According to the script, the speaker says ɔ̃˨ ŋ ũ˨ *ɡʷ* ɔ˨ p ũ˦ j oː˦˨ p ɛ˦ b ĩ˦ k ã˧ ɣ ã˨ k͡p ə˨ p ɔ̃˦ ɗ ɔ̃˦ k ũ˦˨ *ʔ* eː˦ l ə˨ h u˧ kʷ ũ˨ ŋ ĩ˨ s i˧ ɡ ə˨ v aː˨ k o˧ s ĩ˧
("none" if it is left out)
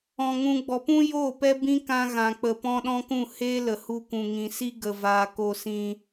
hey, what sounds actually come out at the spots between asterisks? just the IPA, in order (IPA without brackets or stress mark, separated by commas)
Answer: ɡ͡b, h